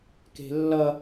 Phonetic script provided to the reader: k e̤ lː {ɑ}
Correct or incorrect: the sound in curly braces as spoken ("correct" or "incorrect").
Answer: incorrect